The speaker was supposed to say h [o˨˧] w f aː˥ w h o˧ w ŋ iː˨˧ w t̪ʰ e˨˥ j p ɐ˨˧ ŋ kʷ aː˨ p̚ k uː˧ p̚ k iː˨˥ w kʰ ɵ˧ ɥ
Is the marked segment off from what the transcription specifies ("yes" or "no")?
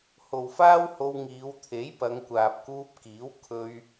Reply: yes